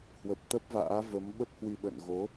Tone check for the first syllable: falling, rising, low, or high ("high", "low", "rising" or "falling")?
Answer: low